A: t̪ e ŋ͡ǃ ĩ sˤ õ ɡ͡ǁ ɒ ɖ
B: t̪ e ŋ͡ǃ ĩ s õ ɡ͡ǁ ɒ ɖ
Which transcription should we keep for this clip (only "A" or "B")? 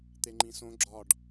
B